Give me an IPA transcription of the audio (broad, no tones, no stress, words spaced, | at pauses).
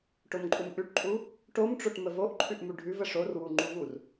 ʈomǃʼumʔʉʈǃʼu | ʈomʈ͡ʂoʈ məvoʔǃʰʉʔ muɖʱʉvə ʂorwu ŋ͡ǃuvur